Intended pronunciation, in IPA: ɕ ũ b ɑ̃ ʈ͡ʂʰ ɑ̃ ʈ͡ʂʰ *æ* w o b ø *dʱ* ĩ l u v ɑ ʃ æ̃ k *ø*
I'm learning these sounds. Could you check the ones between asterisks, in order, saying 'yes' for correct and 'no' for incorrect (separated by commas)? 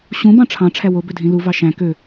yes, yes, yes